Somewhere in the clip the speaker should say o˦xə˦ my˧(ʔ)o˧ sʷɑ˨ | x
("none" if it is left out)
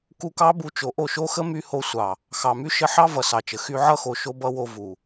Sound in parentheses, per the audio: h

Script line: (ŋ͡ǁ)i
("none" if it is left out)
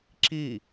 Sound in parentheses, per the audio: ǁ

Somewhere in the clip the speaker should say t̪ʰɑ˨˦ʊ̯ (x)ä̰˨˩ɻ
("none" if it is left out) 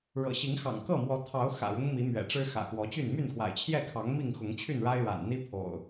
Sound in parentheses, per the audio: x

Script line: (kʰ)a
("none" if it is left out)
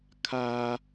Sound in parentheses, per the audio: kʰ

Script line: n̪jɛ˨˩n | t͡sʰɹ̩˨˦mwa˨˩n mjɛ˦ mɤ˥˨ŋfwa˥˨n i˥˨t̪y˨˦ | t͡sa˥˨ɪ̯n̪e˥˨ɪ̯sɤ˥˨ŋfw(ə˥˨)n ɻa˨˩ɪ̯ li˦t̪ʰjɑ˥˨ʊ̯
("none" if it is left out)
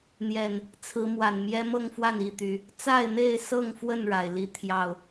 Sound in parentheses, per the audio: ə˥˨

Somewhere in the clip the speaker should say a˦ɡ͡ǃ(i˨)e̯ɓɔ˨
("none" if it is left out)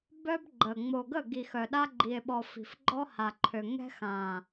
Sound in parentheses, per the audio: i˨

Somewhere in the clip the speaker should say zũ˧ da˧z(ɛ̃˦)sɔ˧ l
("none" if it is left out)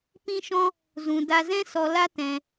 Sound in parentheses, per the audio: ɛ̃˦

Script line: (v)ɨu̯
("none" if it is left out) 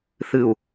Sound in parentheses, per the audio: θ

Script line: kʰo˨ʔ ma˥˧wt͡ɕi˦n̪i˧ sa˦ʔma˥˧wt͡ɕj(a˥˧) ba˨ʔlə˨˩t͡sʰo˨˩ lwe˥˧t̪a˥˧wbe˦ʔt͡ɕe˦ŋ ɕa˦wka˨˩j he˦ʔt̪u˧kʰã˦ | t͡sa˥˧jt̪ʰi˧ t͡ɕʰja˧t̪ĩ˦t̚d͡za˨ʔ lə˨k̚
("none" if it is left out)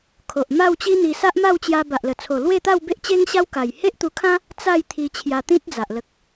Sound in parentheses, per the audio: a˧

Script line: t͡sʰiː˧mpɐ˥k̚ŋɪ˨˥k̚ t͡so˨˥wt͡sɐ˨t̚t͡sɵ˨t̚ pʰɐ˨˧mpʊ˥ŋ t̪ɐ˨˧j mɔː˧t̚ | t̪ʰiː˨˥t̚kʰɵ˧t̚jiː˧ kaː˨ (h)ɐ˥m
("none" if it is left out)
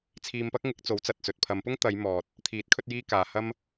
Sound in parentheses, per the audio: h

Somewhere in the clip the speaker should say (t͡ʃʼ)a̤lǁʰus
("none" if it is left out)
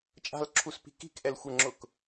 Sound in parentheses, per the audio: t͡ʃʼ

